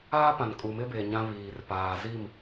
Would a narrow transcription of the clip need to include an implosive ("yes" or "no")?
no